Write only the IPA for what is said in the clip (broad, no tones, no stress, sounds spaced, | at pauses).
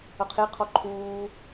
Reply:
ʌ qʰ e qʰ ɔ ǃʰ uː